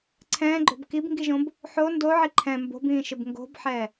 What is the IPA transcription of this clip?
ǀʰ ɛ̃ː ɡ͡ǃ o̤ b k i b ŋ ɡ i ʒ õ b | ħ o n d o ʕ i ǃʰ ɛ̃ m b o̤ b ĩː ʃ ɪ b ŋ ɡ o̤ b ħ ɛ

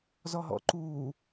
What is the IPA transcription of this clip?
z ɔ ɦ ɔ̰ ǃ uː

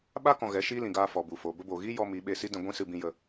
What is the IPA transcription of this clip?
ɓ a˦ k ɔ̃˨ ɣ ɛ˨˦ ʃ iː˦ l ĩ˨ ɡ aː˧ f ɔ˨ b u˨ f o˨ b ə˦ b o˨ ɣ i˦ j ɔ˧ m i˨˦ ɓ eː˧ s i˦ d ɛ̃˧ ɡʷ ĩ˦ s ɨ˧ b ĩ˧ j ə˧

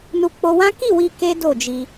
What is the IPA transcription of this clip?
n u˧ k͡p o˧ w ã˦ k i˦˨ w i˧ k e˦ d o˦˨ d͡ʒ i˧

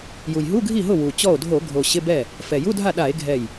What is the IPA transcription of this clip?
j u˨˩ j ɦ u˧˥˧ ɡʱ i˥˩ ɦ ʊ˥˩ w u˨˩ t͡ɕ ɔ˥˩ o̯ dʱ o˧˩˧ ɡʱ o˨˩ ɕ ɪ˧˥˧ b ɛ˥˩ | f ɛ˨˩ j u˧˥˧ dʱ a˥˩ ɗ a˧˩˧ e̯ ɡʱ ɛ˥˩ j

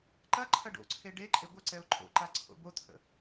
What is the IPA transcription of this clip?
ǃ ɐ ǃʰ ɐ ɖ o̰ ǀʰ e ɖ e ǃʼ e ɡʷ ə ǀ ɛ ʊ̯ ǃʼ o̰ ǃ a ǀʰ o̰ b o t̪ʰ ə̰

